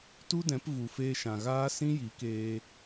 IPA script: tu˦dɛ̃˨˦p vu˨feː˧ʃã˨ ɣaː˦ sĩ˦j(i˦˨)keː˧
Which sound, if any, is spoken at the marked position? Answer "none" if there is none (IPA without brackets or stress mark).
i˨˦